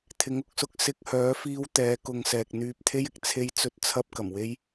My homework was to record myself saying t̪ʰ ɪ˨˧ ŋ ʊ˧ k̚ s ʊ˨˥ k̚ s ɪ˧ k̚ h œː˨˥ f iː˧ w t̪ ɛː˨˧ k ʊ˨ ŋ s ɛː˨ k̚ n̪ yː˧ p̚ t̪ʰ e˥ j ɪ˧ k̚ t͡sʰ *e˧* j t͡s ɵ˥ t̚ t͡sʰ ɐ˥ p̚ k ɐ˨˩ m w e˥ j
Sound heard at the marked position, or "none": e˥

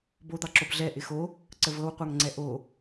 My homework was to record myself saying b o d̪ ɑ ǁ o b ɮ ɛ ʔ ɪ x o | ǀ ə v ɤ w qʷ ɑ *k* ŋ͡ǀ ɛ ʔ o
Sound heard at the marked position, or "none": ŋ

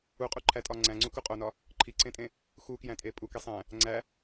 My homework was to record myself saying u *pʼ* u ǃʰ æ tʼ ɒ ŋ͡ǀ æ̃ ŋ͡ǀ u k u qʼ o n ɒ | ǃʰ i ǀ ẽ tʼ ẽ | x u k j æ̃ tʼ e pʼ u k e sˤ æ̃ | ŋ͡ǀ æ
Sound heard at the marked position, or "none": qʼ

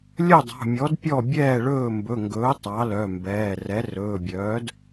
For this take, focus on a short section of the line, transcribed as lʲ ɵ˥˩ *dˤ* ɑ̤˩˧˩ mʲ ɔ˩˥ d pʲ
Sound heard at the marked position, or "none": dˤ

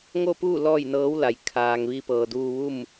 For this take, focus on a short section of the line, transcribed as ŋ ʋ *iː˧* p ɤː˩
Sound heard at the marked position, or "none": iː˧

